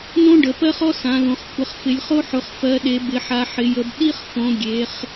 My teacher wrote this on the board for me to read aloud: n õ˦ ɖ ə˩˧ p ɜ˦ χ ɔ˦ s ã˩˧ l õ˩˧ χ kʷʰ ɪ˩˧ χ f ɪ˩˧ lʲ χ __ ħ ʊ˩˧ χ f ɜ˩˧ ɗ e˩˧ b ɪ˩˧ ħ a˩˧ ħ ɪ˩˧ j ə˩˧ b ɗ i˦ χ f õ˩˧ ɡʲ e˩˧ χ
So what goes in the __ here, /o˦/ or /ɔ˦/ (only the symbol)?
o˦